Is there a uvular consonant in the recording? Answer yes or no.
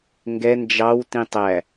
no